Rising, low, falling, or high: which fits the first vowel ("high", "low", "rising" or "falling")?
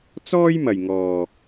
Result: high